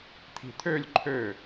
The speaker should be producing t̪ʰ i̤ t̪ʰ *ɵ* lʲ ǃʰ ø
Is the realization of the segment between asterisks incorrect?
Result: yes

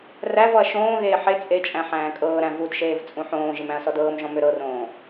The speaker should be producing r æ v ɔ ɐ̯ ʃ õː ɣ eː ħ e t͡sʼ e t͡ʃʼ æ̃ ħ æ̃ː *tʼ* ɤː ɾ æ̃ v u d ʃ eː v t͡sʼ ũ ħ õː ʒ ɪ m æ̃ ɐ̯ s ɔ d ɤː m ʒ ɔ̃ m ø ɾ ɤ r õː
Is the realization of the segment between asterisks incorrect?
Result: yes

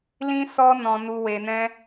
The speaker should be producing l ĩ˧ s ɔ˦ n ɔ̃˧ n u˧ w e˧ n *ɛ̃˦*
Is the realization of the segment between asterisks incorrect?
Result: no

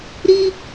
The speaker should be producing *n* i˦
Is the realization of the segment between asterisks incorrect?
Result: yes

